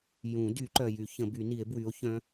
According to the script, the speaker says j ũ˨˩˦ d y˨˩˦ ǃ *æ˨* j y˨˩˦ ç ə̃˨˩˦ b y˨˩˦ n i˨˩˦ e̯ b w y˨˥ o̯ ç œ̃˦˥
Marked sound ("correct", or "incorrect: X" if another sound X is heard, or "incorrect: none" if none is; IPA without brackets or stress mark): incorrect: œ˨